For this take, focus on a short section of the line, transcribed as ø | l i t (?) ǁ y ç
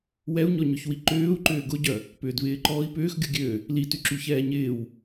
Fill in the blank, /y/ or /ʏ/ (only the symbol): y